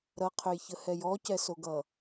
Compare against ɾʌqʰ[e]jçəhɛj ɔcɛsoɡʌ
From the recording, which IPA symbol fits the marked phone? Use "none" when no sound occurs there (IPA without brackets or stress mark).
ø